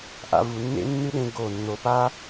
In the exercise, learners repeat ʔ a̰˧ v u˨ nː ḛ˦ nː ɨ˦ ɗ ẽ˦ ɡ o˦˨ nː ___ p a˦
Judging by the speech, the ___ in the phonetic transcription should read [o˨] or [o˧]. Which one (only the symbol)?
o˨